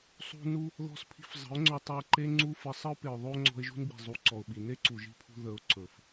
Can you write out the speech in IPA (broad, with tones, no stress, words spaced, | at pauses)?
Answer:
sˤṳ˧ nu˧ | ðɔ̤˧spʰi̤˧f zˤə̤˨˦ʊ̯ŋ͡ǀɵ˧tˤɵ˧ə̯ ǃe˦ŋ͡ǀu˦fə˧ sˤə˦ʊ̯pe˨ʊ̯ ðˤo˦ ŋ͡ǀɔ̤˧ɪ̯ʒṳ˦nɡ͡bi̤˨zˤu˨˦ ǀɔ˨ʊ̯ɓi˨ ne˦ǀu˨ʒi̤˦˨pʰṳ˧ ðə˨˦ʊ̯ ǀɵ˨f